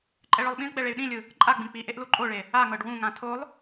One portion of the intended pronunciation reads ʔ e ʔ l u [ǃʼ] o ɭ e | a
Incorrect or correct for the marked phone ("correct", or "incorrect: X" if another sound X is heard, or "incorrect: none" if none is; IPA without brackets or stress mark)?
correct